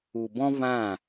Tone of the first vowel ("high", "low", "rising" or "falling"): low